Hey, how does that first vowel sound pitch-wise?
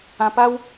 low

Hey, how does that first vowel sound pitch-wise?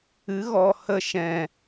rising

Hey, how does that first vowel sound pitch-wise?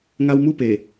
high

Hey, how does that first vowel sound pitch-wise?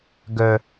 high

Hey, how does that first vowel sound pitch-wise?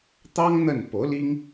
high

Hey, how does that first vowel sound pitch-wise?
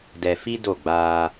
low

